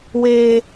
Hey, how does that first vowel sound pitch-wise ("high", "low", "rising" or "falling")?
high